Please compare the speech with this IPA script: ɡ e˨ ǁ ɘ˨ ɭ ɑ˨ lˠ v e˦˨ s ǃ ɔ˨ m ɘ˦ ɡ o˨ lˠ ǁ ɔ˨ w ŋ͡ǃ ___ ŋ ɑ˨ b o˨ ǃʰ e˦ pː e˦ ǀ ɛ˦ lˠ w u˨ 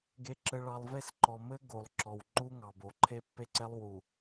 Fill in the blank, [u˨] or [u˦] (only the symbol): u˦